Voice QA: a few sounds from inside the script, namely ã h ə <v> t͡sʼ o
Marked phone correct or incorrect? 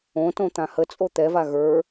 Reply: incorrect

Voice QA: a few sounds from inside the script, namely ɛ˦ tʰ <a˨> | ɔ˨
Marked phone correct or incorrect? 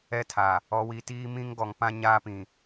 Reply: correct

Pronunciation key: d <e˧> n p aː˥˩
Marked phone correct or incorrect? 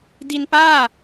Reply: incorrect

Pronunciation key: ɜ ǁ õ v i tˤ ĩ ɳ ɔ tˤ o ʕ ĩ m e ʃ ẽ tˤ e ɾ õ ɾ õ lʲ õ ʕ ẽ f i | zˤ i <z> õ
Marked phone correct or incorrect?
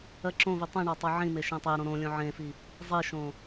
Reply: incorrect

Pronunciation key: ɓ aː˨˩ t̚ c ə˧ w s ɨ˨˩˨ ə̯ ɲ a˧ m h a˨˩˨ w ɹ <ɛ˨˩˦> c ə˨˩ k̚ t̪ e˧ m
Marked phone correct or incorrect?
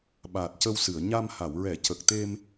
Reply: correct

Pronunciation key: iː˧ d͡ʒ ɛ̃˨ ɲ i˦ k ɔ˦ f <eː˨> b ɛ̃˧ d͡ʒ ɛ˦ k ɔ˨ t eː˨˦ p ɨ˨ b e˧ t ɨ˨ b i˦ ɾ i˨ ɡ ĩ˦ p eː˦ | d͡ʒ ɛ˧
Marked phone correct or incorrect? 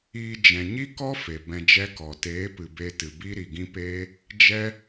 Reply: incorrect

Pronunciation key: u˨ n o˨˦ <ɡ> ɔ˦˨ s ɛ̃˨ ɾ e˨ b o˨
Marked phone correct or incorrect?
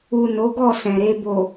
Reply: correct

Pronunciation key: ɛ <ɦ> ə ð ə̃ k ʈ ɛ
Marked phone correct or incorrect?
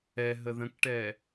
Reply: correct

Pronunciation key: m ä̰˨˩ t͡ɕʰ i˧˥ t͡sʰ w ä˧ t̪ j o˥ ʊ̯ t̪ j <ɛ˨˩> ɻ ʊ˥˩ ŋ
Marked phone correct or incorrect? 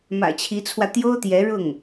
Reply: incorrect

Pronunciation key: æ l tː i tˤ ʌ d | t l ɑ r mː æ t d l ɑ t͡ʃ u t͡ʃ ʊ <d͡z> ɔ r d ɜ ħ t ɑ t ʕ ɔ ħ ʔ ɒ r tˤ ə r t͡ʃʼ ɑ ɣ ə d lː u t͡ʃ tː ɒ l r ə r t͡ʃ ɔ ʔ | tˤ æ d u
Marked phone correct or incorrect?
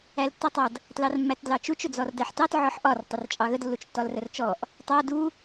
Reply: correct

